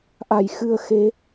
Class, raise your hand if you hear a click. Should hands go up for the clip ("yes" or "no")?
no